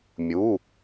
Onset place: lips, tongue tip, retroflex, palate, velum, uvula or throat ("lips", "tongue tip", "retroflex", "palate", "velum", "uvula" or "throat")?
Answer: lips